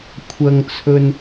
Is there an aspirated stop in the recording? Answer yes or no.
yes